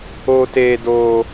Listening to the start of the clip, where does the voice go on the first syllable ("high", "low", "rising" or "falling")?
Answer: high